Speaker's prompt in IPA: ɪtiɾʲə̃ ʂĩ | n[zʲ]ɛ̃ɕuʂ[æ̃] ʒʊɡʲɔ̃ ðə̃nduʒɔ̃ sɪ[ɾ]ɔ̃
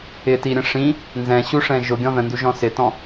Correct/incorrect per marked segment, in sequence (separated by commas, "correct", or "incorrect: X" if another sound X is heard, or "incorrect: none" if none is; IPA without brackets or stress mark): incorrect: z, incorrect: ɛ̃, incorrect: t